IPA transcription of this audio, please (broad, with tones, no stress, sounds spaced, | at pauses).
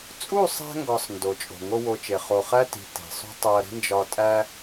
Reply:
t͡sʼ u˦˨ sˤ æ̤˧ ŋ ɡ ɒ˨ sˤ n d o˨ t͡ʃʼ o̤˨ ŋ o˦ w o˧ t͡ʃ e˨ χ o˨ χ æ˦ t i̤˨ t e̤˨ sˤ ṳ˦ tˤ o˧ ɐ̯ ɾ i̤˦ n d͡ʒ ɒ˧ tʼ æ˦